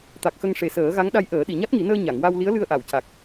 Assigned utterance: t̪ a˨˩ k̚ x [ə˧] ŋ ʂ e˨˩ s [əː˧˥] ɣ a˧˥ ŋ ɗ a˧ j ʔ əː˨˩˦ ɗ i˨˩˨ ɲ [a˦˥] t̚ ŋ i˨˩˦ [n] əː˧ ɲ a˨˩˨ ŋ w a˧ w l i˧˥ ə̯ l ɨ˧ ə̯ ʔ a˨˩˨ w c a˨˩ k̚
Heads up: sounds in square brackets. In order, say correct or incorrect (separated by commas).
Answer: correct, incorrect, correct, correct